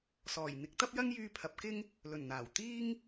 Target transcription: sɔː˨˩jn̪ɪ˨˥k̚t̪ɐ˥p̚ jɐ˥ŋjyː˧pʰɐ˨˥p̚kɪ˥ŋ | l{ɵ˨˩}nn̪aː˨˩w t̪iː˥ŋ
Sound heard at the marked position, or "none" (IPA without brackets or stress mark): ɵ˨˩